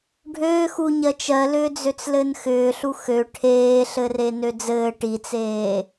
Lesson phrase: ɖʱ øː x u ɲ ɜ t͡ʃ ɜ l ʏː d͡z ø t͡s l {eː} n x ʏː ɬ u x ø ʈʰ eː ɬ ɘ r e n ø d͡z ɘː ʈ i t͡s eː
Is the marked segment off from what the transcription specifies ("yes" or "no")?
yes